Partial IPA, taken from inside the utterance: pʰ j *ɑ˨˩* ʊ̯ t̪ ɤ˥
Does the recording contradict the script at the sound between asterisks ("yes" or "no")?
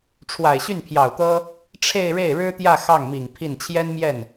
no